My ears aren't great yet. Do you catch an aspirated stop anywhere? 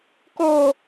no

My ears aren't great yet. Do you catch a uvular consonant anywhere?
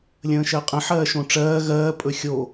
yes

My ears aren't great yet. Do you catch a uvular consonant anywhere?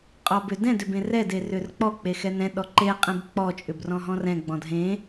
yes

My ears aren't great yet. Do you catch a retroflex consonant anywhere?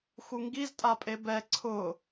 no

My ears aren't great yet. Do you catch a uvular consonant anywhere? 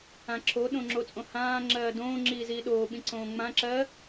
no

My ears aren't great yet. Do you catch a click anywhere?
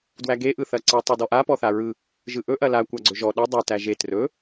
yes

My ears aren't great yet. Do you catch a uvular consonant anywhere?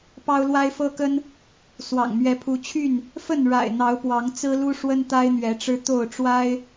no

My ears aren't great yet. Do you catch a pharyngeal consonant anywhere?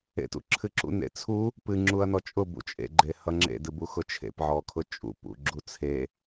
yes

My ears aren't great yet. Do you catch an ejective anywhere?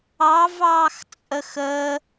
yes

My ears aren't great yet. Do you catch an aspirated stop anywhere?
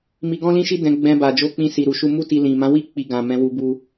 no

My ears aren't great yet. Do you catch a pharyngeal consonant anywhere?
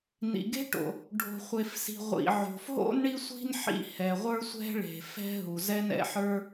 yes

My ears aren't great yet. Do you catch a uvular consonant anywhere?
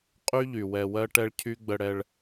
yes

